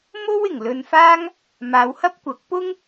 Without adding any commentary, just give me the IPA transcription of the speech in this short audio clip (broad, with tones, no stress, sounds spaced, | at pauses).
m o˥ w ɪ˨˩ ŋ l ɵ˧ n f aː˥ ŋ | m aː˨˧ w h ɐ˥ p̚ kʷ ɐ˨˥ k̚ p ʊ˥ ŋ